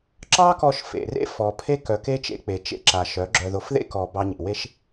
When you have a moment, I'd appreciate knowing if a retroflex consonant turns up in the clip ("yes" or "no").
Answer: no